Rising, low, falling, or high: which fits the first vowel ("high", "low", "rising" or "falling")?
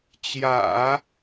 low